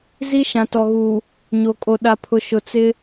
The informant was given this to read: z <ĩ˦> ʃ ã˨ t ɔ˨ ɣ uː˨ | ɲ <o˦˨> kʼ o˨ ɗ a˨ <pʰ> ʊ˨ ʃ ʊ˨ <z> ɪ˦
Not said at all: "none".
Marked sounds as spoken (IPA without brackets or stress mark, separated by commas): i˦, o˨, pʰ, t͡s